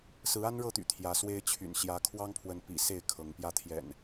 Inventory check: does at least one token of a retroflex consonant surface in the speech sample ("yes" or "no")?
yes